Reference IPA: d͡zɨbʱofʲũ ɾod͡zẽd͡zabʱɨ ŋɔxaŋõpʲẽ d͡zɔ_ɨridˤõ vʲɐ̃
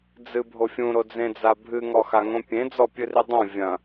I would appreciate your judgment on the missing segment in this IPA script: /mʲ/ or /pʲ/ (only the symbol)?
pʲ